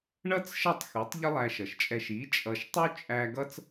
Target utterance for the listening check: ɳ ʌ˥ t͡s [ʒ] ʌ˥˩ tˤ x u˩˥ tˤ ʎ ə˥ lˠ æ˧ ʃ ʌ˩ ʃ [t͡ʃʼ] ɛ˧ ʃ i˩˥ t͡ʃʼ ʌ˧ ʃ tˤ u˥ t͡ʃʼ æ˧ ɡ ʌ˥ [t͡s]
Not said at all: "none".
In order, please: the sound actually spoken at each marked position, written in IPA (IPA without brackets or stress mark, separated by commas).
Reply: ʃ, t͡ʃʼ, t͡s